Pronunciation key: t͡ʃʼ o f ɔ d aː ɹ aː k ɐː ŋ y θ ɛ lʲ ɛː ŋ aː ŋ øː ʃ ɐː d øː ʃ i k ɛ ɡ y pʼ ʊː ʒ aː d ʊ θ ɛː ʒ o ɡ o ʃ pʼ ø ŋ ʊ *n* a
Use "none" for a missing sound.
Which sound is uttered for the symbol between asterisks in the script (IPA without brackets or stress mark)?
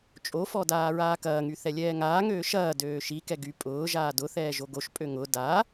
d